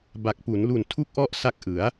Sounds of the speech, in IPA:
b a˨˩ k̚ p u˩˦ n l u˨˩ n tʰ u˦˥ k̚ ʔ ɔ˦˥ ʔ s a˦˥ k̚ ʔ ɯ˩˦ a̯

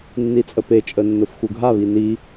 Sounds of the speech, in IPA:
nː i t͡sʼ ə p e t͡ʃʼ ə nː ʊ f x u ɡʱ a β i n i

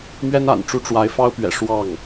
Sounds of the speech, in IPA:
m ɥ ɛ˥ n a̰˨˩ n ʈ͡ʂ u˥ ʈ͡ʂ w a˧˥ ɪ̯ f ɑ˥ ʊ̯ p ɥ ɛ̰˨˩ ʂ w ɑ˥˩ ŋ

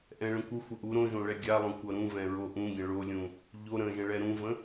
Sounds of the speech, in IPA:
ʔ ɛ̃ ɭ ə̃ kʷ ə xʷ ə ʔ u ɾ õ ʒ õ ɭ ɛ ɡʲ a lˠ õ kʷ ʌ ɾ ũ v ɛ̃ ɹ o ʔ ũ ɡʲ ə̃ ɭ o lʲ ũ | ʎ o ɾ ə̃ ʒ ə̃ ɭ ɛ ɾ ũ v ə̃

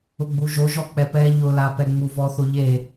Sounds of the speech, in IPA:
ʊ ɡ͡b u ʒ o ʒ ɔ k͡p ɛ p ɛ ʎ ʊ l a p ɛ ŋ͡m u v ɔ θ o ʎ e

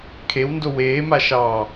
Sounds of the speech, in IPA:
kʰ e w n d o w eː m a ʃ ɑː

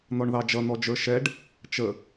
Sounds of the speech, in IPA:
n̪ ɔ ɳ ð ɑ d͡ʒ ʌ n̪ ɔ d͡ʒ ə˞ ʃ ɛ ɖ | t͡ʃ ə

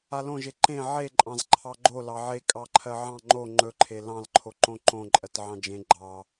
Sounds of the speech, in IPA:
a l õ ʒ e ǃ ẽ ʕ e ǃʼ ɑ̃ z ǃʰ ɑ ɡ͡ǃ o l ɑ ʕ e kʼ ɑ ǃʰ ɜ ʕ ɑ̃ ŋ͡ǃ o ŋ͡ǃ ɵ ǃʰ e l ɑ̃ l ǃʰ o ǃ õ ǃ õ ǃʼ ɜ t ʕ ɑ̃ d͡ʒ ẽ ɡ͡ǃ ɑ

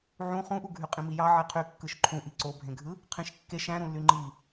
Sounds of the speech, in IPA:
ʕ ũ χ ũ ʔ u ɡʱ y qʼ ĩ m i j ɑ ʕ e qʰ y kː ɯ ʃ ǃʰ ũ ʔ i ǀ o bʱ ẽ ɡʱ ɯ | qʰ ĩ ʃ kː e ʃ æ̃ ɾ ũ lː y ŋ͡ǃ i

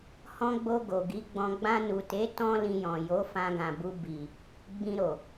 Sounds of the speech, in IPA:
h ɔ̃˧ ɡ͡b o˧ ɡ o˨ ɡ i˨˦ ɡ͡b ɔ̃˧ ɡ͡b ã˧ n u˨ t e˨˦ t ɔ̃˦ l ĩ˧ j ɔ̃˨ j o˨˦ f ã˧ ɡ ã˨ b u˧ b i˨ | ɡ͡b ĩ˧ ɾ o˨

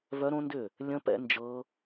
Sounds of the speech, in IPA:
v œ˦˥ ɾ õ˦˥ n d ʏ˥˨ | lʲ ə̃˦˥ p ɛ̰˦˥ n d͡ʒ ɤ˦˥

